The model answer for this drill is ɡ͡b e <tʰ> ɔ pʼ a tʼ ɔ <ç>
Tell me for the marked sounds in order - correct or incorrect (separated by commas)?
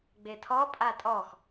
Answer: correct, incorrect